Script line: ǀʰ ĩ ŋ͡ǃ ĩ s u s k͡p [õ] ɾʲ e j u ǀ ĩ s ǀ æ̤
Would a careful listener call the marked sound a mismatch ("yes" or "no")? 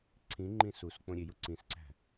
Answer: no